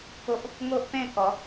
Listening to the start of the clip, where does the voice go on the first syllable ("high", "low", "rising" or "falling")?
high